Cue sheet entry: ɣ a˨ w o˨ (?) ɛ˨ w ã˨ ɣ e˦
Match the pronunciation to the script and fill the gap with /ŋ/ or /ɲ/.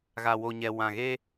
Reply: ɲ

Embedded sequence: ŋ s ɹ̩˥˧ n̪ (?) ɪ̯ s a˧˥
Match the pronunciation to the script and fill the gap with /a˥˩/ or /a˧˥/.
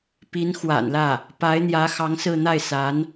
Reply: a˥˩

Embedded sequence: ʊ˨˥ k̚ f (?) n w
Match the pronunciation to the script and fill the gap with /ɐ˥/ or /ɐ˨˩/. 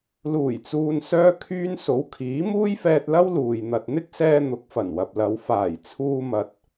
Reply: ɐ˨˩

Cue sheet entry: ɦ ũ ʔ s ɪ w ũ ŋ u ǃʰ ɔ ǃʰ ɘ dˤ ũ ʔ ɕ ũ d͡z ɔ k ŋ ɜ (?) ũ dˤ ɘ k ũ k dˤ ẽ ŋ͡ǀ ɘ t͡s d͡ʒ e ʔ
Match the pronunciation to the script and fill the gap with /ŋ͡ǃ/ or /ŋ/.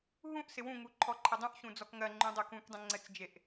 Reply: ŋ͡ǃ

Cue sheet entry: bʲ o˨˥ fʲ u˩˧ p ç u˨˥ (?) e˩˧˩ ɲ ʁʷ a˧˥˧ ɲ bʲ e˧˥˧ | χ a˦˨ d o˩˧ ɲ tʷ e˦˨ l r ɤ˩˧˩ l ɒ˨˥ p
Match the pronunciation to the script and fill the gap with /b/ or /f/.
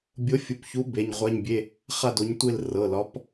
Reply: b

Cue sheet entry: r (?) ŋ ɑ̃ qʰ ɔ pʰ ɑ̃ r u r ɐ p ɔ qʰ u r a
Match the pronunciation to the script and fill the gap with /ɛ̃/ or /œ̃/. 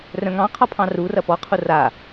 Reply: œ̃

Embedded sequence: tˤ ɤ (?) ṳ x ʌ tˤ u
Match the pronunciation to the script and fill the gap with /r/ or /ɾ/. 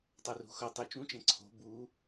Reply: r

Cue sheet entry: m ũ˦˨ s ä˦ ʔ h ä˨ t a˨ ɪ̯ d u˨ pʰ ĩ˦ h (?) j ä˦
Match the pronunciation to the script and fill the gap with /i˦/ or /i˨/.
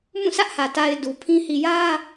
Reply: i˨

